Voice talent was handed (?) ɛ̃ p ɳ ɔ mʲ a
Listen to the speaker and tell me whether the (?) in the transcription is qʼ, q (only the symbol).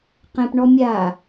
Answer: q